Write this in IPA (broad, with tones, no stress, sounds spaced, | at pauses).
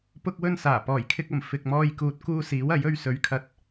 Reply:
p ʊ˥ k̚ w ɵ˥ n s aː˨˩ p ɔː˨˩ j kʰ ɪ˧ k̚ ɐ˨˩ m f ɪ˨ k̚ m ɔː˧ j k uː˨ t̚ k uː˧ s iː˨˥ w ɐ˨˥ j ɵ˧ ɥ s ɵ˨˥ ɥ kʰ ɐ˨˥ t̚